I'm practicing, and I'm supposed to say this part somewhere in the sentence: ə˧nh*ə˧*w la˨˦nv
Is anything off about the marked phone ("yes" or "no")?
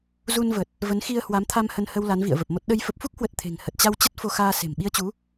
no